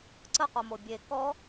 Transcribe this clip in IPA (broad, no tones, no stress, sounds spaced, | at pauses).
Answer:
ǀ ə q o m o bʲ e k ɔ